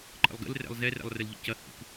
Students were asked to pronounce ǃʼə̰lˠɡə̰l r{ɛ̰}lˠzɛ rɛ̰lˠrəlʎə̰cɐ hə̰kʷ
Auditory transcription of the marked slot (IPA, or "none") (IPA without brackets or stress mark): ɛ̰